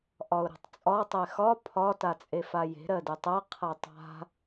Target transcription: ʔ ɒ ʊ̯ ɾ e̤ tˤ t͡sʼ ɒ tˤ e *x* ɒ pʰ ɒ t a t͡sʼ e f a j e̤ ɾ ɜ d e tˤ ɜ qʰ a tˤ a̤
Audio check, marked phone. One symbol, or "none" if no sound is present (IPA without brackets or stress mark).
x